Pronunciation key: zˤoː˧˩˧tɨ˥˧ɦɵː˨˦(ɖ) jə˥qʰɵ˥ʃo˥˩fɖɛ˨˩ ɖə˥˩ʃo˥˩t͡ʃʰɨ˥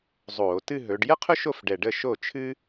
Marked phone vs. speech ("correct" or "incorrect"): correct